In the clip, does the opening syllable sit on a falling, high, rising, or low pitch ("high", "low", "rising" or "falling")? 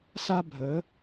high